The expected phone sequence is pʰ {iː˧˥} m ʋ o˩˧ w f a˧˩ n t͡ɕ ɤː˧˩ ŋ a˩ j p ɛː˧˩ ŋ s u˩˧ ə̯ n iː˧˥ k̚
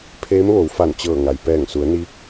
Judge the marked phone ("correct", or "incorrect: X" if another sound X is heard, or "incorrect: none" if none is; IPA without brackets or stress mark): incorrect: eː˧˥